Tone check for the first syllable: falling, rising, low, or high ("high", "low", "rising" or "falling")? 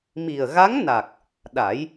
low